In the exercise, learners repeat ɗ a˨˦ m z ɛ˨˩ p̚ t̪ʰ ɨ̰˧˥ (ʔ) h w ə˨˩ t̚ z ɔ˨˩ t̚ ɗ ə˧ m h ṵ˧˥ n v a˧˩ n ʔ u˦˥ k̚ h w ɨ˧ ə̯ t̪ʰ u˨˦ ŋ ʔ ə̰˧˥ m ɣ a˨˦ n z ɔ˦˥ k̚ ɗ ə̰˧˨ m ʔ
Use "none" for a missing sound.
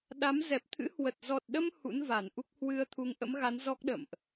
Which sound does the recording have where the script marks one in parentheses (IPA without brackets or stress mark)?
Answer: none